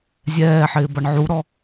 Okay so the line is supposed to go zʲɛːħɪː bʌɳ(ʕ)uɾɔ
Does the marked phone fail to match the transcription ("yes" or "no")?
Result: no